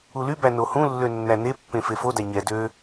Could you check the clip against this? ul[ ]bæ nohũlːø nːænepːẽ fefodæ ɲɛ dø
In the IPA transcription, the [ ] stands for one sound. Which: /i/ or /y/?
y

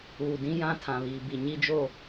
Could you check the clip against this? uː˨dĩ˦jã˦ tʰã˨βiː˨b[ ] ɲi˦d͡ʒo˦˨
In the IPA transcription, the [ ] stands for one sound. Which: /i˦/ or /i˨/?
i˨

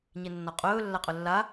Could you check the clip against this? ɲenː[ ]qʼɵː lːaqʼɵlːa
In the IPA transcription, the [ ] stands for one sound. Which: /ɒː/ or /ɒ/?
ɒ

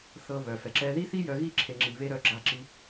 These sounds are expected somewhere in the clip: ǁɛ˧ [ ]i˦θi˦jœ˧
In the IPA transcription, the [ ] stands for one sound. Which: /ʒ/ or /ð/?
ð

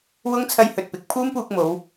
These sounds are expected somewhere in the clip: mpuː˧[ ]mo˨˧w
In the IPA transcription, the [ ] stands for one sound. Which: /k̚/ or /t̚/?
k̚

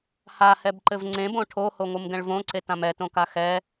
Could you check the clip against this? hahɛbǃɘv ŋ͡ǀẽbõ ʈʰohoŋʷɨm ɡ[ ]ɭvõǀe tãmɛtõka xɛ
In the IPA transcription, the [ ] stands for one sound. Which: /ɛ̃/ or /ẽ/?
ɛ̃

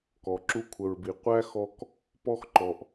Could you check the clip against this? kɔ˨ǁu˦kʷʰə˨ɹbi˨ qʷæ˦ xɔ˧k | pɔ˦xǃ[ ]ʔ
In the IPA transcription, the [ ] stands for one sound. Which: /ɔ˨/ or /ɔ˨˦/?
ɔ˨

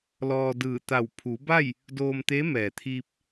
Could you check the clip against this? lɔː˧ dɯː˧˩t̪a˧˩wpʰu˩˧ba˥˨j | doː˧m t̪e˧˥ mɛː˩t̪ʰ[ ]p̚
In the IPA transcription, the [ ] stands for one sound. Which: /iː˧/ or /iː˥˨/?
iː˧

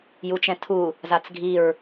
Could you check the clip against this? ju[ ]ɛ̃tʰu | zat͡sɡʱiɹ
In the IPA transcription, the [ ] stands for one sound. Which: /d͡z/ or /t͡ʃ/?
t͡ʃ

